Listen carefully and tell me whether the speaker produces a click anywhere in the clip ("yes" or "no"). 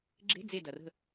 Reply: yes